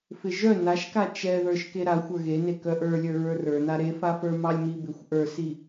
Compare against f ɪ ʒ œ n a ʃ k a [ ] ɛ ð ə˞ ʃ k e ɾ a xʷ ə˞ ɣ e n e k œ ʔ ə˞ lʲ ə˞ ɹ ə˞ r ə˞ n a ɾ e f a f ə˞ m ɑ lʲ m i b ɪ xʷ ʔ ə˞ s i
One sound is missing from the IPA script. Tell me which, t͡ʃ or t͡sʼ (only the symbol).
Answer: t͡ʃ